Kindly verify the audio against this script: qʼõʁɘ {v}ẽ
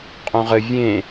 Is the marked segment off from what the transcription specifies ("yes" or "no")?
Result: yes